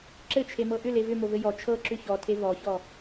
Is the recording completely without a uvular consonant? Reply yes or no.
yes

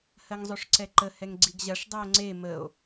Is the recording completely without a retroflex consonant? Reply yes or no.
no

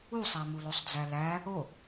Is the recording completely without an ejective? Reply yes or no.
yes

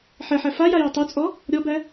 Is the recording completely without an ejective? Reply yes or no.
no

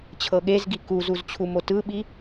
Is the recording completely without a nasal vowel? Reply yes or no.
yes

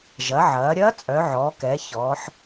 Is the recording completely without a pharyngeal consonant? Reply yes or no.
no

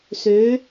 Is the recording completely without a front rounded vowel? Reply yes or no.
no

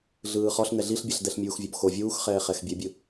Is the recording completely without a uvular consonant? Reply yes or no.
no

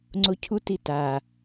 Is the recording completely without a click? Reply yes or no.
no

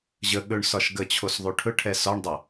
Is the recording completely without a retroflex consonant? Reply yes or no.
no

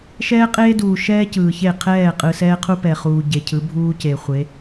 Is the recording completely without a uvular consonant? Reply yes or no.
no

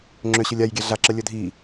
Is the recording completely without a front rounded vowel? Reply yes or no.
no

